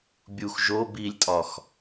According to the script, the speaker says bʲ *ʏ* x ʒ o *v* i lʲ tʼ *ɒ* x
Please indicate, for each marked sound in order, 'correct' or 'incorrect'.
incorrect: u, incorrect: b, correct

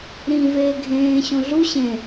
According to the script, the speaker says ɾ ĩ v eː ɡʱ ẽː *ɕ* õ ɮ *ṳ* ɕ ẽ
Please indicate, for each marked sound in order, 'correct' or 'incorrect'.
correct, incorrect: u

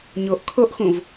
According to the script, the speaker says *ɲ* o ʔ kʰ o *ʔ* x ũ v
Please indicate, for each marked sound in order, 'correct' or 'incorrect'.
correct, correct

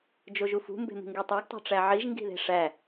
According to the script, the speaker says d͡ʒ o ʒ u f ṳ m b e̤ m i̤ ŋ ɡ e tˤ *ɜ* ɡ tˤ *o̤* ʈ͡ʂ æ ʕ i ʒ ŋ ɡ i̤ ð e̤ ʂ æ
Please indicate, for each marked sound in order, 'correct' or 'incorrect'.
incorrect: æ, correct

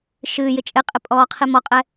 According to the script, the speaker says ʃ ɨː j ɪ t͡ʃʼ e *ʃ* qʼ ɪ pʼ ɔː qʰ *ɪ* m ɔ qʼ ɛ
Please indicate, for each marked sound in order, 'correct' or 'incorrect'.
incorrect: none, incorrect: i

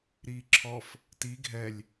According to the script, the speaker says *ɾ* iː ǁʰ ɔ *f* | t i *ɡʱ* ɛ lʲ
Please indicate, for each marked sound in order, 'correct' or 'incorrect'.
correct, correct, correct

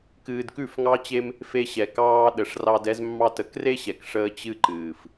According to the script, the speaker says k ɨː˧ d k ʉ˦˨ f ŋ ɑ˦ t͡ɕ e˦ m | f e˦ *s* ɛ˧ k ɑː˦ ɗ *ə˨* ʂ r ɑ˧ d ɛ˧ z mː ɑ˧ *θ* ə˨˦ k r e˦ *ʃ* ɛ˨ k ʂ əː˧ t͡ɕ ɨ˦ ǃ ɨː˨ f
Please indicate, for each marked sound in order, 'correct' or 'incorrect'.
incorrect: ɕ, correct, incorrect: t, incorrect: ɕ

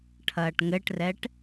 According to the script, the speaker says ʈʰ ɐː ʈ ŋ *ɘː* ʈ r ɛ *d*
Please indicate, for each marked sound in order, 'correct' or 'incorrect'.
incorrect: ɘ, incorrect: ʈ

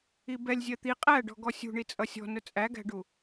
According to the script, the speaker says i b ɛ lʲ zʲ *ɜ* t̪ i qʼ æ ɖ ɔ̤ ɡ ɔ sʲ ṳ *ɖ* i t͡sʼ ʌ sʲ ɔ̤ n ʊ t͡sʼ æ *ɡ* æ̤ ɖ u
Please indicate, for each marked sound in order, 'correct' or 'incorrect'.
correct, incorrect: ɳ, correct

